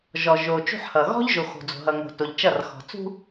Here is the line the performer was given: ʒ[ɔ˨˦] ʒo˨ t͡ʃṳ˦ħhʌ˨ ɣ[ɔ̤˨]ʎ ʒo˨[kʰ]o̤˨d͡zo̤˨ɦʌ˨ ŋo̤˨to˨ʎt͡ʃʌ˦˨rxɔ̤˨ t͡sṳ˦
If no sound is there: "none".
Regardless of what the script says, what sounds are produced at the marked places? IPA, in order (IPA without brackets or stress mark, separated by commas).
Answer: ɔ˨, ɔ̤˦, x